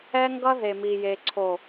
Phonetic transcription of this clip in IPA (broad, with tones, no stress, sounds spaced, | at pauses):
ɛ˦ ŋ ɡ ʌ˦ ð e˨ m i˨ j e˨ ǀʰ o˨